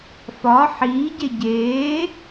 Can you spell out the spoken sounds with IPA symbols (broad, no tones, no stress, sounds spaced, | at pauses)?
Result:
f ɒ ħ iː ɟ e ɟ eː